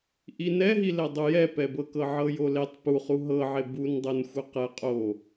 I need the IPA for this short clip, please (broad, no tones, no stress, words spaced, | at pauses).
ʔinɛɦilɛ dˤujɛpɛbɤ kɤʕɤjoletˤ puχu ɦɤʕe bun dˤɤnxʷɛqɛ qʼo